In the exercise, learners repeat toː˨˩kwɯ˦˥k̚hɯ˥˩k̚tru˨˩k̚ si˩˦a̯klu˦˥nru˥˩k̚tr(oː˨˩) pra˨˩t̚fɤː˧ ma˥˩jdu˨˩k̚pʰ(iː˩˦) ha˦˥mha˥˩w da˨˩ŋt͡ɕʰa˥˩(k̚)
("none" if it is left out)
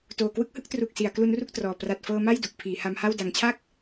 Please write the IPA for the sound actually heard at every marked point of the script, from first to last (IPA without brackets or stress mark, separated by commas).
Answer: ɔː˨˩, iː˩˦, k̚